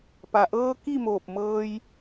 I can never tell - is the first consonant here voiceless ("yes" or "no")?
yes